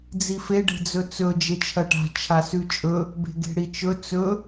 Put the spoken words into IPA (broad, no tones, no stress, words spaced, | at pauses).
d͡zife ɖe̤d͡zɵt͡sɵ d͡ʒet͡ʃʰɐʈa̤ t͡ʃʰasʉt͡ʃʼɵ | be̤ɡe̤ɽit͡ʃɵ t͡sɵ